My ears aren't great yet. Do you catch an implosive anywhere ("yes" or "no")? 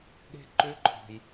yes